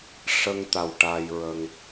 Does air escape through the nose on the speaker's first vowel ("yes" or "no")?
no